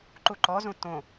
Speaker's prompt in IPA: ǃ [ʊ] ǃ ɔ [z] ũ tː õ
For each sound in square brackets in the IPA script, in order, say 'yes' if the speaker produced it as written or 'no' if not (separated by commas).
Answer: no, yes